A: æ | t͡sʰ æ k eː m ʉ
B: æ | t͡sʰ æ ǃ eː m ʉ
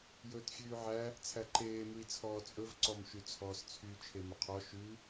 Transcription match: B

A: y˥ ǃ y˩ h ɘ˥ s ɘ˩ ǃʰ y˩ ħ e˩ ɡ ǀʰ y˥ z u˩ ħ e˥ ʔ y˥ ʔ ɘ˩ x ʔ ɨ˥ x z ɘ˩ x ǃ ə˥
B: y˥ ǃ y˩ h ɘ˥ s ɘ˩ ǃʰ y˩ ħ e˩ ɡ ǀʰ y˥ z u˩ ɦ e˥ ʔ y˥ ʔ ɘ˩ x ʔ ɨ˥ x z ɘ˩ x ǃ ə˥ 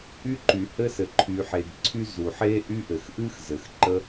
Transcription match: A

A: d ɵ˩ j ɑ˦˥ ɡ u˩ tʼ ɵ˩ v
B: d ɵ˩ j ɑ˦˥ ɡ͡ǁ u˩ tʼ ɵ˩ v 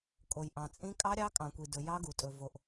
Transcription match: A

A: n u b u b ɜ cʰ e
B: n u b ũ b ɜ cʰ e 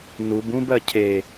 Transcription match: B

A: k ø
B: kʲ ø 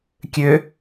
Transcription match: B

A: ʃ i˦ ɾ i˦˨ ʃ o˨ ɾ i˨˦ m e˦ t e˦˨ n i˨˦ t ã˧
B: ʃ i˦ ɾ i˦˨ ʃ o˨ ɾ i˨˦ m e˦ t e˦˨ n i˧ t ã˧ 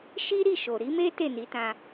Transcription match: A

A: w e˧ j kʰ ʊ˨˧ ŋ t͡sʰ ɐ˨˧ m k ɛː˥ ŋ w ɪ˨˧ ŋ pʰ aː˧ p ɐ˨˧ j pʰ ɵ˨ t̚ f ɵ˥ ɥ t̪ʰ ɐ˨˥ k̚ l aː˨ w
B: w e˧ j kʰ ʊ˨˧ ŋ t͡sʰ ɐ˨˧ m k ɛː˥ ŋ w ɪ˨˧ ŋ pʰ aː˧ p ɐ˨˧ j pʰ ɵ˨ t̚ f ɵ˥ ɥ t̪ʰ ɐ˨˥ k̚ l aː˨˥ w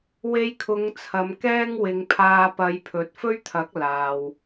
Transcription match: A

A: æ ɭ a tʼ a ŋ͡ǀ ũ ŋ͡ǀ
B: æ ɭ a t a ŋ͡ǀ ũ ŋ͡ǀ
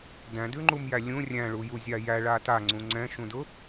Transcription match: B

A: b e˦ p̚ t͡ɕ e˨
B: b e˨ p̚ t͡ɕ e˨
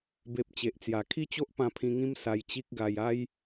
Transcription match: B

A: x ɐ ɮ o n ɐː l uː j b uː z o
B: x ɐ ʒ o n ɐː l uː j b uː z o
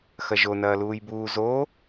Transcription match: B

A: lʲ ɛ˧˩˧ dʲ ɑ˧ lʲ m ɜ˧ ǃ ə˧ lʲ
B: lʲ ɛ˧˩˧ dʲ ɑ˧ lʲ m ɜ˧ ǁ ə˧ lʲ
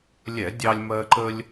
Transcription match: A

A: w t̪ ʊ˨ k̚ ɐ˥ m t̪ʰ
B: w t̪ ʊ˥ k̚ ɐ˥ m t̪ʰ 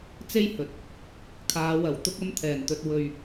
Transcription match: B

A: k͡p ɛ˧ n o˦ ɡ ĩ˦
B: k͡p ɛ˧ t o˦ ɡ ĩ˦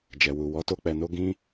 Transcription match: A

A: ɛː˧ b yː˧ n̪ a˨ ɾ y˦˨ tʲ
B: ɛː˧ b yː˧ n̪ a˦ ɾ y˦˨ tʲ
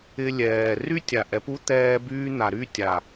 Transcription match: A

